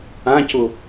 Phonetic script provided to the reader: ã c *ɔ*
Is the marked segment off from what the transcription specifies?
yes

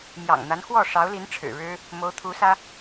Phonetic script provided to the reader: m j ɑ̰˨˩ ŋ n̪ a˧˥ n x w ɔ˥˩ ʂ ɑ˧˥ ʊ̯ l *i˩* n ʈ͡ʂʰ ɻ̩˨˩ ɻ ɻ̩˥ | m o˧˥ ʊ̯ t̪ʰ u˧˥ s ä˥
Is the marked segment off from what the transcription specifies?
yes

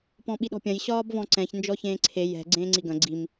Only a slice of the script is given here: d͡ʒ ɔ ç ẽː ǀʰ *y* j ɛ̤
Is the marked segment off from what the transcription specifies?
yes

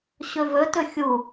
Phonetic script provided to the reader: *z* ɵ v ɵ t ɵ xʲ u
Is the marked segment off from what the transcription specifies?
yes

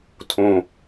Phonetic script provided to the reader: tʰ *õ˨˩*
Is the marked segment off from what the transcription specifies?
no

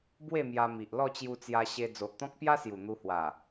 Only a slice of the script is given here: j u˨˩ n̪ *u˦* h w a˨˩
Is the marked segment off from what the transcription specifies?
yes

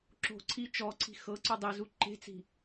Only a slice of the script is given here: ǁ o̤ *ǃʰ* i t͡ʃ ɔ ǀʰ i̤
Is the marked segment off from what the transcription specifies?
yes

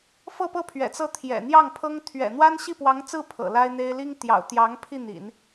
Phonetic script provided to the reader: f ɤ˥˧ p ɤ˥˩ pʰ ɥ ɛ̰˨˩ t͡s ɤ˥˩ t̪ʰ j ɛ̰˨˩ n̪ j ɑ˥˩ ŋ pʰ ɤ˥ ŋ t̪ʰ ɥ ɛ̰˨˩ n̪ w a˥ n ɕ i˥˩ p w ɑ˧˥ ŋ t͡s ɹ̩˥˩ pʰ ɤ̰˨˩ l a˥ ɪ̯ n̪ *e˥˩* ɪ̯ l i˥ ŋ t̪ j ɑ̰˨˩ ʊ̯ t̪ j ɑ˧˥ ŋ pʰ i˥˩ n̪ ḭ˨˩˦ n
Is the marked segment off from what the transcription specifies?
yes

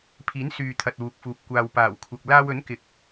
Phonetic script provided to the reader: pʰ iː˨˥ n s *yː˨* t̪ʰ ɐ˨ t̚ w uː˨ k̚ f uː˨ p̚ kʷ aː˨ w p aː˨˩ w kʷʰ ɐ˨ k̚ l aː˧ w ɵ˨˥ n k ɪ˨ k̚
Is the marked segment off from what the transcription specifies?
no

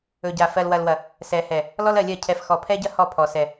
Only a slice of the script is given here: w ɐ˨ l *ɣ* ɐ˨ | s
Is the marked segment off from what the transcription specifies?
yes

